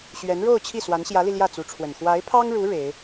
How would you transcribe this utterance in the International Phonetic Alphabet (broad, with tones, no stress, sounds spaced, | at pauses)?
ɕ ɥ ɛ˧˥ n ɻ o˥˧ ʊ̯ t͡ɕʰ i˥˩ s w a˧˥ n ɕ j ä˧˥ l i˧ l j ä˥˩ t͡s u˧˥ ʈ͡ʂʰ w ə˨˩ n x w a˧˥ ɪ̯ pʰ ɑ˥ ŋ ɻ u˧˥ ɻ e˧˥ ɪ̯